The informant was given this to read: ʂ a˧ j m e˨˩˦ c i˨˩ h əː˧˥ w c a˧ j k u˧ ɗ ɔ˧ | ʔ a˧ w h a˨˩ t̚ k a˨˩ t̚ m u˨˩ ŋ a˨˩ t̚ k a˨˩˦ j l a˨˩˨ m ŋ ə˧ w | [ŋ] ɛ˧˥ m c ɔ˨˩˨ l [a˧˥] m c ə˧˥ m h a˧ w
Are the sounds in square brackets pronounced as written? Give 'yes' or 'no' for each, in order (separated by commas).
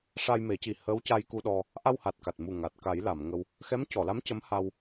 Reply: no, yes